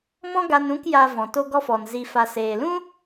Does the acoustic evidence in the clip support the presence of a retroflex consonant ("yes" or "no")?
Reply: no